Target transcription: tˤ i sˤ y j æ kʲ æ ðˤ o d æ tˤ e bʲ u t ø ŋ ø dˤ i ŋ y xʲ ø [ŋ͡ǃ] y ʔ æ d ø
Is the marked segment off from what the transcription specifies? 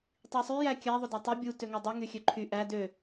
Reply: yes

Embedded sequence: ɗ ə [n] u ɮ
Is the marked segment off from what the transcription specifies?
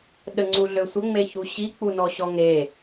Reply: yes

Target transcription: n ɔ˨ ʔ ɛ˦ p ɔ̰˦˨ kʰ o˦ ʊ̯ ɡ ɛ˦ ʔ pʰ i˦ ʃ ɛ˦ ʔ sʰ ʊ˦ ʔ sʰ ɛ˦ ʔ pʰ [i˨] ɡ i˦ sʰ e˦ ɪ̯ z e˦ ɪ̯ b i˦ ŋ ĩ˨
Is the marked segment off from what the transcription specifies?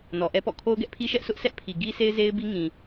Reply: no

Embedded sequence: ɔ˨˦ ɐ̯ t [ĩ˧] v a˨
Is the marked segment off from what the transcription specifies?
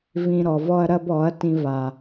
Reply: no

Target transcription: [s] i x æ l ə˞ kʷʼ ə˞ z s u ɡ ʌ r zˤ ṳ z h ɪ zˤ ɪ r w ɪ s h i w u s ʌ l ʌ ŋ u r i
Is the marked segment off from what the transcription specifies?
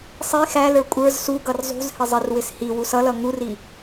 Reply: yes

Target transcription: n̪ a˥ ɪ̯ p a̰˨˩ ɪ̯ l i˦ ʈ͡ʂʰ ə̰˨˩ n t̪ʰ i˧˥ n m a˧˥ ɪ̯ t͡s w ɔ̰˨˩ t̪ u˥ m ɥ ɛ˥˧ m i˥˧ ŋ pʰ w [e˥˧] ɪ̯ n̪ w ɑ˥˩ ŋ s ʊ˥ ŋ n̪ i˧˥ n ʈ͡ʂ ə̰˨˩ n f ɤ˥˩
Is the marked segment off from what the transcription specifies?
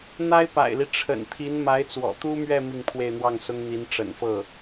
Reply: no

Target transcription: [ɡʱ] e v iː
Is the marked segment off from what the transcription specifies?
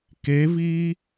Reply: yes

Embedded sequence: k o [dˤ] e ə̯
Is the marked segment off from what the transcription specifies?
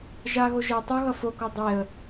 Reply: no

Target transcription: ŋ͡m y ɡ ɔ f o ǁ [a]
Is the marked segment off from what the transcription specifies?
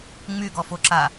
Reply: no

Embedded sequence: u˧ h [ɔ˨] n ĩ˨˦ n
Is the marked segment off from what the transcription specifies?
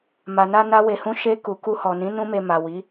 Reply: no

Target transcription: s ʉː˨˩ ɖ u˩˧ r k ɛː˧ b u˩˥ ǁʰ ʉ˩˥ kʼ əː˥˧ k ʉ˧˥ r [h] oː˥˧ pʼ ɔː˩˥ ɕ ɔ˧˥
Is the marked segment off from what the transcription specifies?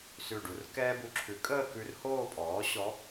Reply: no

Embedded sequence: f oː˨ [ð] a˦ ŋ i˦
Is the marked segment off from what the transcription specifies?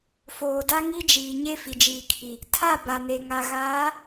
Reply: yes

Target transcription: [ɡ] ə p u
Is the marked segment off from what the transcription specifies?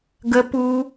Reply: no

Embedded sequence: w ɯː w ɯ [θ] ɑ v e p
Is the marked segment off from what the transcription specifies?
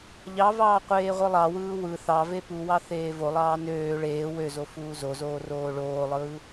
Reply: no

